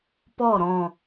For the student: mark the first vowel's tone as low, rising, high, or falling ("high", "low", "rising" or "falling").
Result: falling